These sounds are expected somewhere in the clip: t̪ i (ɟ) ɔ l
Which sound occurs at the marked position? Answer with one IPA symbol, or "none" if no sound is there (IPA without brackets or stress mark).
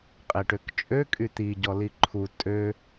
ɟ